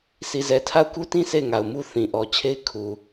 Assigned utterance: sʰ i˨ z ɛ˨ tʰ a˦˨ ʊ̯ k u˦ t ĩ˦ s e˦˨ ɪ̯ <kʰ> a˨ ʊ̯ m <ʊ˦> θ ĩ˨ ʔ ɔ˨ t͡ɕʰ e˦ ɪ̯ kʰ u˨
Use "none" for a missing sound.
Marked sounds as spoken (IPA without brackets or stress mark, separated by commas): ŋ, u˦